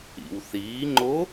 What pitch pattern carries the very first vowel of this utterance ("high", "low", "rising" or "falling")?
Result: low